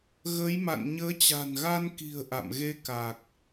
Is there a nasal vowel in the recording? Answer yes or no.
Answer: no